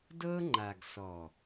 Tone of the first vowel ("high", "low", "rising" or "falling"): high